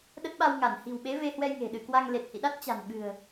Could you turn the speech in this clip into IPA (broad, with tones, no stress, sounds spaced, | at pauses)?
ɗ ə˦˥ t̚ ɓ a˧ w ŋ a˧˩ n h i̤˨˩ w ɓ e˨˦ v e˧ h w ɛ˧ j ŋ e̤˨˩ ɗ ɨ˧˩ k w a˧ ŋ l e˨˩ t̚ h ḭ˧˨ ɗ a˦˥ t̚ t͡ɕ a̤˨˩ n ɓ ɨ̤˨˩ ə̯